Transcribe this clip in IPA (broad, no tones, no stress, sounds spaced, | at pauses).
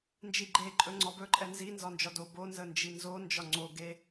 n d͡ʒ i ɡ͡ǃ e ǃʼ ɵ ŋ͡ǀ ɒ b ɵ ǃʼ ɛ n z i n z ɒ n d͡ʒ ɒ d o b o n z ə n d͡ʒ i n z o n d͡ʒ ɒ ŋ͡ǀ o ɡ e